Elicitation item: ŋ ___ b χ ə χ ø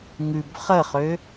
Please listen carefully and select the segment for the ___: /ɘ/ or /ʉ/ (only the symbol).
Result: ʉ